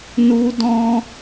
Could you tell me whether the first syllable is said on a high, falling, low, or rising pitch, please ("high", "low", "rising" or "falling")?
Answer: high